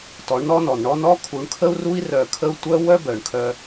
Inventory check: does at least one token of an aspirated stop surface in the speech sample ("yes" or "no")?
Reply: yes